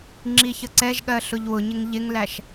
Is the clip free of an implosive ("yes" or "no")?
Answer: no